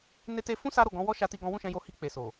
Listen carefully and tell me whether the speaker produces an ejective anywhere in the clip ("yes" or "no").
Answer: no